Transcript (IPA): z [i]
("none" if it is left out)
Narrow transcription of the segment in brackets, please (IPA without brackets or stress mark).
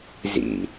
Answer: ḭ